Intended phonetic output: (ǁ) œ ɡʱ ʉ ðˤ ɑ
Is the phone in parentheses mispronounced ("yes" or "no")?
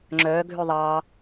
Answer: yes